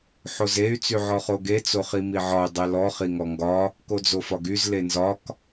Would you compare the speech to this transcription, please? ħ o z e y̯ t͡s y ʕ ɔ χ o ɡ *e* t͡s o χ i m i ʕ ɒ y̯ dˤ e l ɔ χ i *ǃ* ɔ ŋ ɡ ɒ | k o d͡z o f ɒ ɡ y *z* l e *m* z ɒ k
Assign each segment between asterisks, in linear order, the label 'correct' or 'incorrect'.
correct, incorrect: ŋ, correct, incorrect: n

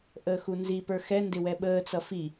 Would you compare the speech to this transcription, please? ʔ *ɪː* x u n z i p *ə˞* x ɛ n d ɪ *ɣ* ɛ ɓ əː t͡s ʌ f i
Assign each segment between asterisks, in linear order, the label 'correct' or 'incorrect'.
incorrect: əː, correct, incorrect: w

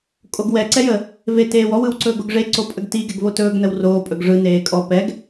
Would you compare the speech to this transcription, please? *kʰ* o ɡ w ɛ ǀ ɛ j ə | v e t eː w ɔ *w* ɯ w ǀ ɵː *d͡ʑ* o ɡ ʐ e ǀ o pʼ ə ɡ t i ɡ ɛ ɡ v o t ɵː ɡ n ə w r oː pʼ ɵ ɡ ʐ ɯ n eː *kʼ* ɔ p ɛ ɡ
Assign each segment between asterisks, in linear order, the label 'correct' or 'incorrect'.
incorrect: kʼ, correct, incorrect: ɡ, correct

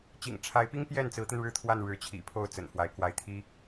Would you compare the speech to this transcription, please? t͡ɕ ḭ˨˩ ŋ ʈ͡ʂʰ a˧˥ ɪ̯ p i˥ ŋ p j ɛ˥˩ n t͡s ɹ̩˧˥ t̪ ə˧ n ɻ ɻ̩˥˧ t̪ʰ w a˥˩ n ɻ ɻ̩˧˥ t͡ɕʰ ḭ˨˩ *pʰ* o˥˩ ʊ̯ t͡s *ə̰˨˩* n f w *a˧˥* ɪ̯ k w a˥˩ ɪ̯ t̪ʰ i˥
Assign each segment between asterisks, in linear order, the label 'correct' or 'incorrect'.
correct, correct, correct

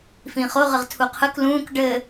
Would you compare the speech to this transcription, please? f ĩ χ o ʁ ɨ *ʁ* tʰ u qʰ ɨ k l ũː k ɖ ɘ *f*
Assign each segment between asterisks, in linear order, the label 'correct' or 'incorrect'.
correct, incorrect: none

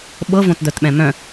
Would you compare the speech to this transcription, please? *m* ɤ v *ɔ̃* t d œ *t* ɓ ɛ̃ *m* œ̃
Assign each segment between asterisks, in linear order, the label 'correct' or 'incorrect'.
incorrect: ɓ, incorrect: õ, correct, correct

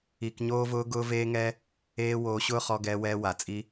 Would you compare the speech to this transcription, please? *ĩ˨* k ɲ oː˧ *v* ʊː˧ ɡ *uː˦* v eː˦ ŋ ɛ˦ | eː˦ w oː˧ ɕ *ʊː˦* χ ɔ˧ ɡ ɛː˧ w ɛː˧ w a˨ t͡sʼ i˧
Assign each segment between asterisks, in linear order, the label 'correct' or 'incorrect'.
incorrect: i˨, correct, incorrect: ʊː˦, correct

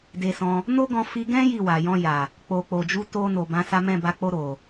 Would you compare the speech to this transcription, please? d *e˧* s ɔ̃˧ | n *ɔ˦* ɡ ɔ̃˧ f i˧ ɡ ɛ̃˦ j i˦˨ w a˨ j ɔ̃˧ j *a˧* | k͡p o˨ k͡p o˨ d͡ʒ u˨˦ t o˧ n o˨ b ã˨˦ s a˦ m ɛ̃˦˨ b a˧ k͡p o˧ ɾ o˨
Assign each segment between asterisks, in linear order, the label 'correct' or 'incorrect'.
correct, incorrect: o˦, incorrect: a˨

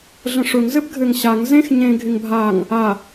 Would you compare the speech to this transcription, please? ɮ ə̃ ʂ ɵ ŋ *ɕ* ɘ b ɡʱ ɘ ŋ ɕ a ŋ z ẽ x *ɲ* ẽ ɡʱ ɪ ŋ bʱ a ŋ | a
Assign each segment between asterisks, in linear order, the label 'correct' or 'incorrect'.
incorrect: z, correct

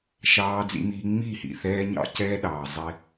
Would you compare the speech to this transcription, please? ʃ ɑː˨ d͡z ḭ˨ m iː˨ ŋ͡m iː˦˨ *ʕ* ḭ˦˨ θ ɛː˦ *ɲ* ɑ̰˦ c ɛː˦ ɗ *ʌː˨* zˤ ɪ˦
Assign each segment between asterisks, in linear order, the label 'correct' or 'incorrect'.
incorrect: h, correct, incorrect: ɑː˨

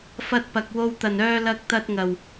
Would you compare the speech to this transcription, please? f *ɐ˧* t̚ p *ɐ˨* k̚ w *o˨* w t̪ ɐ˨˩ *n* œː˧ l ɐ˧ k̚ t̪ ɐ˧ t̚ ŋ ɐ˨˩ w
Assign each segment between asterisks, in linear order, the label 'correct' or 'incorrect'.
correct, correct, incorrect: o˧, correct

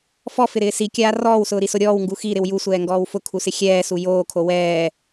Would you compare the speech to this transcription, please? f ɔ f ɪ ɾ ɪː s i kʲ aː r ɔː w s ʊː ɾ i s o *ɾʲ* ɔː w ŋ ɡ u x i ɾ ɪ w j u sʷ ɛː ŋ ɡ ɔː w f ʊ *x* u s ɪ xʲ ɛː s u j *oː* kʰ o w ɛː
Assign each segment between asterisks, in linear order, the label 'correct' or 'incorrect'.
correct, incorrect: kʰ, correct

